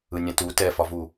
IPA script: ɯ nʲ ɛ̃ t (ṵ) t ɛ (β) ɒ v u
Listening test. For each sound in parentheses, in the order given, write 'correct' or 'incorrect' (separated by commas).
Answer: incorrect, incorrect